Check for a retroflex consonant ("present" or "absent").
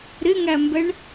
present